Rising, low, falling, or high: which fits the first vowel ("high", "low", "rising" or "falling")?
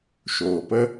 low